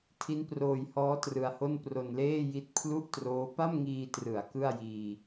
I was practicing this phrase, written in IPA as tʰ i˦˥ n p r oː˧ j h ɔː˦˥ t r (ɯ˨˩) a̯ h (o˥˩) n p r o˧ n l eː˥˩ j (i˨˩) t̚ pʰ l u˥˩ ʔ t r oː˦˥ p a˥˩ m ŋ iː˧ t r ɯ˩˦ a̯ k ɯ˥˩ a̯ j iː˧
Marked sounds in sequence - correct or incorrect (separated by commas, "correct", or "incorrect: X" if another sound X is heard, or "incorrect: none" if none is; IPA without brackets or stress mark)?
incorrect: ɯ˧, correct, incorrect: i˦˥